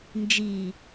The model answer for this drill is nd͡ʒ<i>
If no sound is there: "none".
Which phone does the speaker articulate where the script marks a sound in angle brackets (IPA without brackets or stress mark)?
i